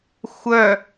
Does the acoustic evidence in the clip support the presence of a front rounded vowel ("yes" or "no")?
yes